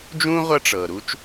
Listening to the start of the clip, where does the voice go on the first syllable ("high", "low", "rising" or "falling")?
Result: high